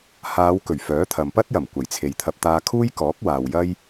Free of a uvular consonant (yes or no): yes